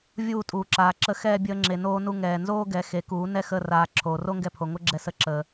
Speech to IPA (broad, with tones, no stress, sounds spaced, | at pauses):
vʲ uː˦˨ tʼ uː˨ ǁ aː˨ ǁ ə˧ x ɛː˧ bʲ əː˧ ŋ͡ǁ e˨ n oː˧ n u˧ ŋ ɛː˨ n z oː˦ ɡ ɛ˨˦ x e˨˦ k uː˨˦ n ɛ˦ x əː˧ r aː˨ ǁʰ oː˨ r o˦ ŋ ɡ ɛ˧ pʰ o˨ ŋ o˦ ɡ͡ǁ ɛ˧ s ə˧ ǁ əː˨